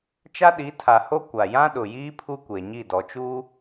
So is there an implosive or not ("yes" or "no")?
yes